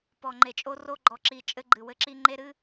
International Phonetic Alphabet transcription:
p ɔ˨ ŋ͡ǃ e˨ t͡ʃʼ o˦ r o˦ ɡ͡ǃ ɔ˨ ǁ i˨ t͡ʃʼ ɘ˦ ɡ͡ǃ ɨ˨ w ɘ˦ ǁ i˦ ŋ͡ǃ e˦ ɾ ɨ˦

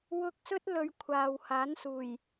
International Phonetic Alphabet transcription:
w ʊ˧ k̚ s ɵ˥ t̚ l ɵ˧ ɥ kʷʰ aː˨ w h aː˨˥ n s uː˨˩ j

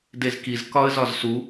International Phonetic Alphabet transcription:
d e z k i z k ɒ ə̯ z ɒ z s u

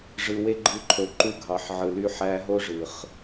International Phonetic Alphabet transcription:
ʐ ɯ˨ w e˦ ɡ͡ǃ ɯ˧ ǃʰ o˨ ǃ u˧ ɡʱ ɑ˨ ħ ʕ ɯ˨ l y˧ ħ æ˧ ɦ o˦ ʐ ɯ˨ χ

